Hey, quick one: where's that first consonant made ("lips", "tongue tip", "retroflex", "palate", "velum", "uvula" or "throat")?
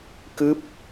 velum